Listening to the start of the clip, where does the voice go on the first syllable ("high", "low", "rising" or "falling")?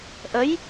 rising